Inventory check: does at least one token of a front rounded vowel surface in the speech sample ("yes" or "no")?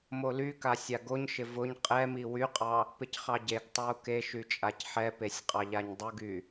yes